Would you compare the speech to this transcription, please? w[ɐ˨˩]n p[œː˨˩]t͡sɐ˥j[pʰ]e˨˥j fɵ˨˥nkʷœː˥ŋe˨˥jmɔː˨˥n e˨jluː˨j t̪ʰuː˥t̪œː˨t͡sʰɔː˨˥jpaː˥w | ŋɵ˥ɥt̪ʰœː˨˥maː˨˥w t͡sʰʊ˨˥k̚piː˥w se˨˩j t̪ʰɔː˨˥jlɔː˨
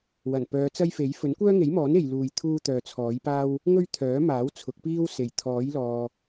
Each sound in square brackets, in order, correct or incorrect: correct, incorrect: œː˨˧, incorrect: f

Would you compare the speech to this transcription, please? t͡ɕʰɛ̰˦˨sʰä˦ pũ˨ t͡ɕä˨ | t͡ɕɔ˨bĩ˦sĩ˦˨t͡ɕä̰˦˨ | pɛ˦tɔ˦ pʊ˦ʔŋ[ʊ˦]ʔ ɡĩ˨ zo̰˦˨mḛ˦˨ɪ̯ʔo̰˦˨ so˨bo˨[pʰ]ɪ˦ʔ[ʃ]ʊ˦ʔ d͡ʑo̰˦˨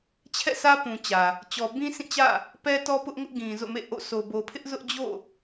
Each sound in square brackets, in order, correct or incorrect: correct, correct, incorrect: z

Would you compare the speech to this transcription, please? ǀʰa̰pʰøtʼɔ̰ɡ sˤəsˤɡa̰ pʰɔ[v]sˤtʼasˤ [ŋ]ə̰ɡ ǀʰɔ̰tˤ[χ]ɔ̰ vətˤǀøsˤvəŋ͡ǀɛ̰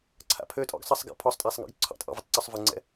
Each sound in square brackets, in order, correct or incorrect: incorrect: none, correct, incorrect: ʔ

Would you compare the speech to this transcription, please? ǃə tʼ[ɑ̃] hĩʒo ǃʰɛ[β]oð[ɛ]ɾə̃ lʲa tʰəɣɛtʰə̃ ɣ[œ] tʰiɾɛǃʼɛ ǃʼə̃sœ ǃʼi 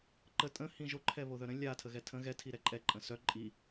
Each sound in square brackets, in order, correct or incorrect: incorrect: ə̃, correct, incorrect: œ, incorrect: ɛ

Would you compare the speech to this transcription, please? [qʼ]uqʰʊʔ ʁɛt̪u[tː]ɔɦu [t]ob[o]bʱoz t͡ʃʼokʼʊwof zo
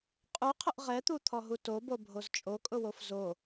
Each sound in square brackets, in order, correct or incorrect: correct, incorrect: t̪ʰ, correct, correct

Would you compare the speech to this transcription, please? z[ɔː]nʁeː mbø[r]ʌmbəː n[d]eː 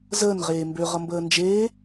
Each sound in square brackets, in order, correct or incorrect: incorrect: əː, incorrect: ʁ, incorrect: d͡ʒ

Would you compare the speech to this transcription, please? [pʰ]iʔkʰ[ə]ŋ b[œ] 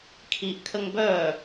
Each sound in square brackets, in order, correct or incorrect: incorrect: kʰ, correct, correct

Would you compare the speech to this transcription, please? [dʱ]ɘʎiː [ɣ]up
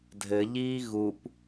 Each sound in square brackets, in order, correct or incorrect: correct, correct

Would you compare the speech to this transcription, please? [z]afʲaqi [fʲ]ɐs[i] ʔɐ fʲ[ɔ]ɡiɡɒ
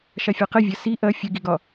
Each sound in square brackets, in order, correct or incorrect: incorrect: ʃ, incorrect: vʲ, correct, incorrect: ə

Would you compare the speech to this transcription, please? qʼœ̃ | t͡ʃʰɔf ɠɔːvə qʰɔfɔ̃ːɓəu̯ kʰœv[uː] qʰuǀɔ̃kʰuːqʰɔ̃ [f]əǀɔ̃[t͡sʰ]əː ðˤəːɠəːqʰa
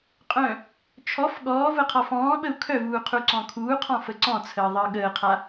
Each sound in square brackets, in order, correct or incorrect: correct, correct, correct

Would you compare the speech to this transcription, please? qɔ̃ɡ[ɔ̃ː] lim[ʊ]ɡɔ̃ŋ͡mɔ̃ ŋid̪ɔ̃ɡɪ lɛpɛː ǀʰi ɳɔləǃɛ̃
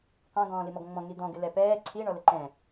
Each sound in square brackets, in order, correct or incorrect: correct, incorrect: ɔ

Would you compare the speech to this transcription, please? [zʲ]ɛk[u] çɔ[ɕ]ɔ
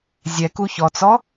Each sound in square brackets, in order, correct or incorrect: correct, correct, incorrect: t͡s

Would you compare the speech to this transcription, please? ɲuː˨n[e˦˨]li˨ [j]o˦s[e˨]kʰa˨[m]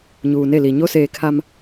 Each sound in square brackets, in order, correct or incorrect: correct, incorrect: ɲ, incorrect: eː˨, correct

